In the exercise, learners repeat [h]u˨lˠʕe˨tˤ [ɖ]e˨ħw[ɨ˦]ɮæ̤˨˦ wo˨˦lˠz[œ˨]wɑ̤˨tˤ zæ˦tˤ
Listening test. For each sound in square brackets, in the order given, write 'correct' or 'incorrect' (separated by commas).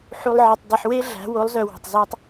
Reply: incorrect, incorrect, incorrect, correct